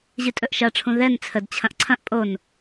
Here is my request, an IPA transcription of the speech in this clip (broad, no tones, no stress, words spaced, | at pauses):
ʑɨtʼɵʔʃɐʈ͡ʂʰũ ðɛn t͡sʰədt͡ɕʰɐ̃ʔ ǀʰɐ̃ʔ pʼon